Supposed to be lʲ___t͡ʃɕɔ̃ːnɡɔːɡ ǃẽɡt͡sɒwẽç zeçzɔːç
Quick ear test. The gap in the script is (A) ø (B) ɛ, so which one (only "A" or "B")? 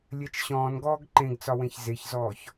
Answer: B